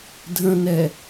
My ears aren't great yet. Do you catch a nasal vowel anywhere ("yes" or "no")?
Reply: yes